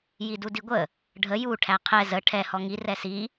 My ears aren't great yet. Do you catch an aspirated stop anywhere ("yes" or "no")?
yes